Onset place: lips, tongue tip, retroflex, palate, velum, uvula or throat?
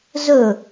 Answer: tongue tip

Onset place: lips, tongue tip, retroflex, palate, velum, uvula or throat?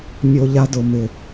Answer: lips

